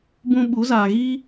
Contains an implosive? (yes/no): yes